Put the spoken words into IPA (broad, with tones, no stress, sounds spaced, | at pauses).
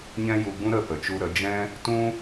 ɲ ɛ̃˦ j u˧ ɡ͡b ũ˦ ɾ ə˦˨ p ə˨ t͡ʃ u˧ ɾ ə˨˦ d͡ʒ ɛ̃˦ | t ũ˦